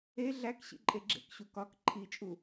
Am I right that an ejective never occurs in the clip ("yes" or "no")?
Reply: no